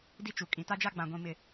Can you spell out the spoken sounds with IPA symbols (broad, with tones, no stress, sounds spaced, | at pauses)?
d i˦ t͡ʃ u˨ kʼ ĩ˨ t a˦ d͡ʒ a˦ ɡ͡b ã˨ ɡʷ ĩ˨ m ɪ˨